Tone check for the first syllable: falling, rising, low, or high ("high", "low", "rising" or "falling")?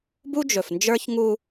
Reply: high